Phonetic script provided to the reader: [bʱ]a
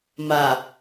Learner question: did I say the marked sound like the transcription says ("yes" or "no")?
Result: no